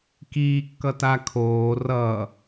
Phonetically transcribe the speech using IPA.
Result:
k iː kː ʌ t a kʰ oː r ʌ

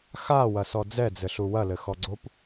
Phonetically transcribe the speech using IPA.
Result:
x a w ɐ s ɔ d͡z ɛ d͡z ɘ ɬ u w ɐ l ɘ x ɔ ɡ͡ǀ o p

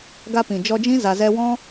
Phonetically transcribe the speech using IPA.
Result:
ɡ a˧ p ĩ˨ d͡ʒ ɔ˧ d͡ʒ ĩ˦ z a˧ z ɛ˦ w ɔ̃˦

